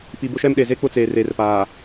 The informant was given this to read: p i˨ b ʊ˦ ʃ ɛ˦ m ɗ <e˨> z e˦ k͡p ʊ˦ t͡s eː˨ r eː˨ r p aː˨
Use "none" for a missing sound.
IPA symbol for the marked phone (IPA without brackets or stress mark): e˨